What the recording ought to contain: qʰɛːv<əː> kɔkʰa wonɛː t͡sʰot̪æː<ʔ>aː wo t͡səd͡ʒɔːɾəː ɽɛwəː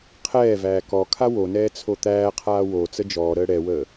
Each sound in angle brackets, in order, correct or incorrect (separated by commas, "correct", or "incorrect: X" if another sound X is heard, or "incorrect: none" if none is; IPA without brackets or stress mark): incorrect: æː, incorrect: qʰ